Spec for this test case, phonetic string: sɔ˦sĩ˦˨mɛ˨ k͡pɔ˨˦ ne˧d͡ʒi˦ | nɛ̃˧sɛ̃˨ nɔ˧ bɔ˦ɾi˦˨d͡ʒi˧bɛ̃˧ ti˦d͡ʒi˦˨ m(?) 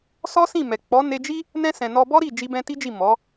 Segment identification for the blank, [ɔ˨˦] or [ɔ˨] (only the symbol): ɔ˨˦